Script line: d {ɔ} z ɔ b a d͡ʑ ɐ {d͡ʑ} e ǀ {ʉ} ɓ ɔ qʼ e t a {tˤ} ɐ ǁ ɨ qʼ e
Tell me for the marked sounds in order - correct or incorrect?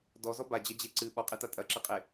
correct, correct, incorrect: ɨ, incorrect: tʼ

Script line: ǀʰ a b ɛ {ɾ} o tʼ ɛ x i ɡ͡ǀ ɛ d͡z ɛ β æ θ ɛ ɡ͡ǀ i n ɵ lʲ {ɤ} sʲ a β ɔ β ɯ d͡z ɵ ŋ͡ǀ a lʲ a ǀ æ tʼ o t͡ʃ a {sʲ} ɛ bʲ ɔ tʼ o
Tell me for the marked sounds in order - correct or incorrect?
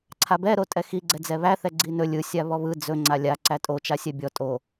correct, incorrect: ɯ, correct

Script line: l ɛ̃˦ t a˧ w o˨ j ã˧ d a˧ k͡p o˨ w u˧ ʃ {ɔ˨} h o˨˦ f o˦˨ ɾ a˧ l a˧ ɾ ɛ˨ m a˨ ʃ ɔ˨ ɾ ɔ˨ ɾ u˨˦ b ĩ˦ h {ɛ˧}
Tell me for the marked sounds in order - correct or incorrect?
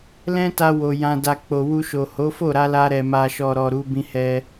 incorrect: o˨, incorrect: ɛ˦

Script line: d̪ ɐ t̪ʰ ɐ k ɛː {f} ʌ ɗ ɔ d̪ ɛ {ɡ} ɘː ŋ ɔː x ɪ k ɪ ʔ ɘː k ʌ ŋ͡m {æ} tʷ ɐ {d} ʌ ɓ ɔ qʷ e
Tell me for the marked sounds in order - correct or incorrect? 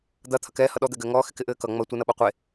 incorrect: h, correct, incorrect: ɐ, incorrect: n

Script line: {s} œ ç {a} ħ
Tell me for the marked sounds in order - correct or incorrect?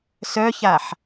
correct, correct

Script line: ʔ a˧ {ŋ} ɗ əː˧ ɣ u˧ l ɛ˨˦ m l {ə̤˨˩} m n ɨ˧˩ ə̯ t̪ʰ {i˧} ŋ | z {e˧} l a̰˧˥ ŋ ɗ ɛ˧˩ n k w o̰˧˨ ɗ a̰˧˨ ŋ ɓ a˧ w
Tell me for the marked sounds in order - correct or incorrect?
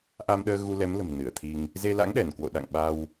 incorrect: m, correct, correct, correct

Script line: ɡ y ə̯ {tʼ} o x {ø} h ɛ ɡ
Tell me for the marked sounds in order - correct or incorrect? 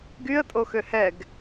correct, correct

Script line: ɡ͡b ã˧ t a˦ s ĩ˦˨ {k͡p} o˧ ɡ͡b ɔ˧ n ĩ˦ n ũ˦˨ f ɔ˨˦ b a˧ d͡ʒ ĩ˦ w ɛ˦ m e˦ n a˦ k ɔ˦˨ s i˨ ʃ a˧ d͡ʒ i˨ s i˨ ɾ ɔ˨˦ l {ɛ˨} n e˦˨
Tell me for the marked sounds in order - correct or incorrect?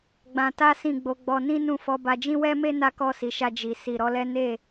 incorrect: ɡ͡b, incorrect: ɛ˦

